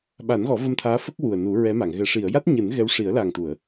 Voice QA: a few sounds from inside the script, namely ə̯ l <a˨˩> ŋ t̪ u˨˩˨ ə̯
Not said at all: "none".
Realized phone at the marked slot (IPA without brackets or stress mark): a˨˩